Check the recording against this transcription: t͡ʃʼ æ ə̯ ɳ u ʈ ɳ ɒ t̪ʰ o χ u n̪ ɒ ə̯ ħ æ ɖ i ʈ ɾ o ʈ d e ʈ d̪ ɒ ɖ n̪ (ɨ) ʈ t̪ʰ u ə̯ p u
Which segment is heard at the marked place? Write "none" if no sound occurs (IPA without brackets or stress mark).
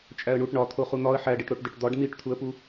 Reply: i